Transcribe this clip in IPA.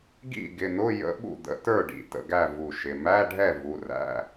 ɡḭ˥˩ɡɪ˩˧˩n̪ʊ˧˥˧ jə̰˧˥˧ ɓṵ˥˩d̪ə̰˩˧˩tə˞˥˩ ɖḭ˩˧˩tə̰˥˩ɡæ˥˩ vu˧˩ʃɪ˩˧˩ mæ˧˥˧ɖʱɛ˥˩ vu˩˧˩ræ̰˧˥˧

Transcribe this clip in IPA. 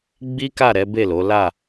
ɡ͡bi˦ka˦˨ ɾɛ˨˦be˦˨lo˨˦ la˦˨

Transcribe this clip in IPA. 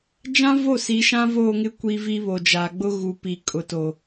d͡ʒã˦vo˦˨si˨˦ ʃã˦voː˦˨ŋɪ˦ kʷiː˦vi˦ βo˨d͡ʒaː˨ɡ͡bʊ˦ ɣu˨pi˨ kʼʊ˨to˨

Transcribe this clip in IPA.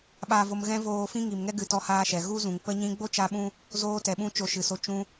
ɓaː˧vo˧mɣɛ̃˦ voː˧ fĩ˦ŋi˨mŋɛ˦ ɡɨ˧tɔ˦haː˦ʃɛ˨ ɣu˦zũ˨ŋpə˦ɲĩ˦ ɡ͡bo˦t͡ʃa˧ɓũ˧ | zoː˧tɛ˨ɓũ˧ t͡ʃo˧ʃɨ˨so˧ t͡ʃũ˧

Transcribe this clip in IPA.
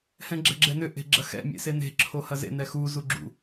hɛ̃ɡ͡ǁɛ̤ɡ͡ǁɛnʏ ʔe̤ɡ͡ǁɐxɛ̰ mʲḛsene̤ ǁʰohɐzḛ nɛxu zuɡ͡ǁṵ

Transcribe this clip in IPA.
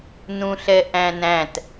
nũɬɛʔæ̃næ̃t

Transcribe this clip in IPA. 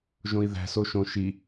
ʒõi̯ðæ̤so ʃõ ʃi

